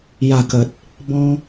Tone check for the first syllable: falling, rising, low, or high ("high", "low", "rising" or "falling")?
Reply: low